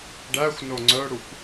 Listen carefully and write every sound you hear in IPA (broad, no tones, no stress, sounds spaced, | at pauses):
ɖ æ xʷ n o ŋ͡ǀ œ ɽ u kʷ